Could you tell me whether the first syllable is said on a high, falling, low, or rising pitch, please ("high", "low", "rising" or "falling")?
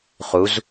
rising